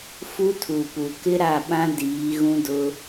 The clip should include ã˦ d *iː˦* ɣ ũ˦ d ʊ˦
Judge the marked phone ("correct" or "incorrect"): incorrect